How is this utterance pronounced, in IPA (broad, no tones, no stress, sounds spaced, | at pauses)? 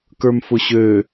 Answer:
k ə˞ m f ʊ ɕ ø